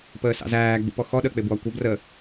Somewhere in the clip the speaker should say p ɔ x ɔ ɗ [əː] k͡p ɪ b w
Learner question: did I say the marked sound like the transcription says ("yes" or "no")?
yes